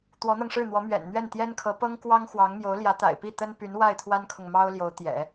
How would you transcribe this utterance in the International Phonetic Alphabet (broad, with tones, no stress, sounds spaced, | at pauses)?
t̪ w ɔ˧˥ n̪ ɤ˧ ŋ ʂ ɻ̩˥˩ n̪ w ɔ˧˥ m ɥ ɛ̰˨˩ n n̪ ɥ ɛ˥˩ n t̪ j ɛ˥ n kʰ ɤ˧˥ p ɤ˥ ŋ k w ɑ˥ ŋ x w ɑ˧˥ ŋ m j o˧˥ ʊ̯ l j ä˧˥ t̪ a̰˨˩ ɪ̯ p i˥˩ t̪ ə˥ n p y˧˥ n w a˥˩ ɪ̯ t̪ʰ w a˥ n kʰ ʊ˨ ŋ m ɑ˥ ʊ̯ l j o˧˥ ʊ̯ t̪ j ɛ̰˨˩˦